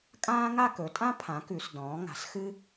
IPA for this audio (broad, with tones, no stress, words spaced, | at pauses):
kʼãː˥ŋa˥˧ kɵ˩˥tʼã˥ pʰã˩˥kʉ˩˧s dɔ̃ː˩˥ŋa̤˩˥sxɨ˥